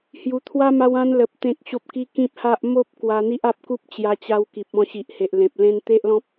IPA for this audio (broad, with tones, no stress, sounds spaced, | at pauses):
h j u˧ t̪ʰ w a˦ m a˧ w ã˧ n l ə˨ p̚ t̪ ẽ˦ k̚ ɕ o˦ p̚ k i˦ k ĩ˦ p̚ h a˦ ʔ m o˦ p̚ k w a˧ n̪ i˦ ʔ a˦ p̚ k u˦ p̚ t͡ɕ j a˦ t͡ɕ a˦ w k i˨ p̚ ɔ̃˥˧ ɕ i˨ ʔ h e˨ ʔ l ẽ˨ p̚ l ẽ˦ n t̪ e˦ ʔ l ɔ̃˦ p̚